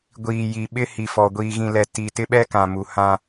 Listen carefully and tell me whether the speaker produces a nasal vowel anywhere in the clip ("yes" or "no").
yes